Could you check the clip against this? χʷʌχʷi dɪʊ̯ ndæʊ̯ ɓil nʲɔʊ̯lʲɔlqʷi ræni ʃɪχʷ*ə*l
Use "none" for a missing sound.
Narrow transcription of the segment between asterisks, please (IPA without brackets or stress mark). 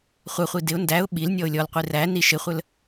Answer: ə